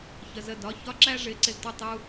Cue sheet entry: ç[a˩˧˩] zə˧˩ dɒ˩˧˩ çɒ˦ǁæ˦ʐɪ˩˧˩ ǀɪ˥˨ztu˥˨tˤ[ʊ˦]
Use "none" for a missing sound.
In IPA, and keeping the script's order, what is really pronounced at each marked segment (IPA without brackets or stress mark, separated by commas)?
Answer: ə˩˧˩, u˦